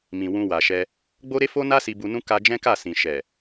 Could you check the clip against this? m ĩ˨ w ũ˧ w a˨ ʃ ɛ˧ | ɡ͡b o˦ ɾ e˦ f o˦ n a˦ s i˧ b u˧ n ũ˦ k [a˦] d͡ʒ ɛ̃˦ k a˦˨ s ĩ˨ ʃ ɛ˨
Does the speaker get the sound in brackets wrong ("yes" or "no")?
yes